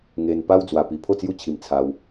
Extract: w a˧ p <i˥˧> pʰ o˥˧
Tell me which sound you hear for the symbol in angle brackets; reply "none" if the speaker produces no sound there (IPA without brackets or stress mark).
i˧